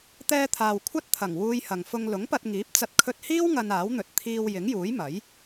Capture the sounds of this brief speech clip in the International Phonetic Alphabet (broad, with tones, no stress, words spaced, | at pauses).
t̪ɛː˧t̪ʰaː˨w kʷʰɐ˥t̚t̪ʰɐ˨˩ŋ wuː˧jhɐ˨ŋfʊ˧ŋ lʊ˨˥ŋpɐ˧t̚ŋiː˨˥p̚t͡sɐ˧t̚ kʰɵ˧t̚hiː˥w ŋɐ˧naː˨˥wn̪ɵ˨˥t̚ t̪ʰiː˧w jɪ˨˥ŋjuː˨˥j mɐ˨˥j